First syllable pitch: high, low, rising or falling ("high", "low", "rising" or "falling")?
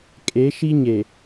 rising